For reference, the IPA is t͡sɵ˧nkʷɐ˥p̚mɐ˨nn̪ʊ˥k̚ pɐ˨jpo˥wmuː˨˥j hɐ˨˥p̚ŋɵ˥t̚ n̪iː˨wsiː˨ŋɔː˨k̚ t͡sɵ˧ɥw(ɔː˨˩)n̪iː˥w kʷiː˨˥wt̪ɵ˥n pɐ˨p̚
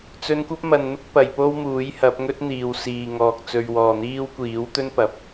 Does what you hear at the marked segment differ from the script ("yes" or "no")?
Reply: yes